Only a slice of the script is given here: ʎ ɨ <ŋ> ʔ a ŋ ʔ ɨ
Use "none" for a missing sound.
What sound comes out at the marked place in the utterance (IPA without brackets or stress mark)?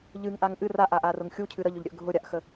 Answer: ŋ